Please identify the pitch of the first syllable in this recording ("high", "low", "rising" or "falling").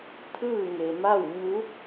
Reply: falling